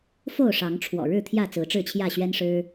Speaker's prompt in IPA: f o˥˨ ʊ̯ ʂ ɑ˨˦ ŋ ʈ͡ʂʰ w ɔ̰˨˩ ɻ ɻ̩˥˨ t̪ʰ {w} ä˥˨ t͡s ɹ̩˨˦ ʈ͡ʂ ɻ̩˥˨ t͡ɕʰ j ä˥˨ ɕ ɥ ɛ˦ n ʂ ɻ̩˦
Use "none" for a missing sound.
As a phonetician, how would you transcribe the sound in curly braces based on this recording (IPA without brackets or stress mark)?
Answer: j